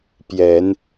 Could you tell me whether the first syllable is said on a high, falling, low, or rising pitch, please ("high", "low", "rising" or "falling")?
low